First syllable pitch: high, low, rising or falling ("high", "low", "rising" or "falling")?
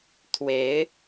rising